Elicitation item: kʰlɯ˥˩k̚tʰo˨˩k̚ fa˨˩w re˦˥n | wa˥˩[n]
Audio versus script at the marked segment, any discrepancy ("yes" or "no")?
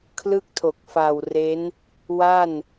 no